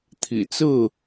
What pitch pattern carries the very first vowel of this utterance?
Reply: low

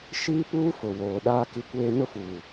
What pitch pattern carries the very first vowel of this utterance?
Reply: high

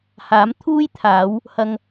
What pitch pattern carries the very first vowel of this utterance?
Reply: rising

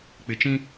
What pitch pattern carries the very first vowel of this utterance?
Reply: low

